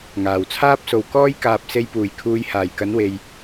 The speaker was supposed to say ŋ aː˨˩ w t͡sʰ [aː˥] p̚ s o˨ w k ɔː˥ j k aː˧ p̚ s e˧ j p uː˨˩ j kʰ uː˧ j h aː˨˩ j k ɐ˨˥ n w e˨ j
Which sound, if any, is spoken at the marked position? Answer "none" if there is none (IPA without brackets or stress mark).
aː˥